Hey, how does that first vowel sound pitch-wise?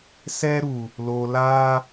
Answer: high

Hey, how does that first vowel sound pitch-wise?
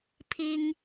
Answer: high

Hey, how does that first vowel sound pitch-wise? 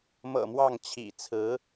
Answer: low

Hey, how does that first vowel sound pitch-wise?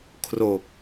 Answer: low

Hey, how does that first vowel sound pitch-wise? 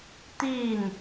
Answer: falling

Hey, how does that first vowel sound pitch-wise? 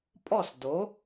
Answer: falling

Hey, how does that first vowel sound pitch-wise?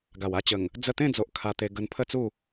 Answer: low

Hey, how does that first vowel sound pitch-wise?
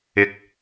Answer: low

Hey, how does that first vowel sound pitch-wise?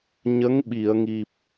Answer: rising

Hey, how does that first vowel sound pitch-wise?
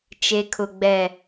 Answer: low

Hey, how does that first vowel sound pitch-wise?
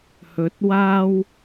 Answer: rising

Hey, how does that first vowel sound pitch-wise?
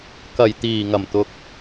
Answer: low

